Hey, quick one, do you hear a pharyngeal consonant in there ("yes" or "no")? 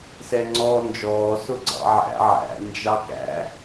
yes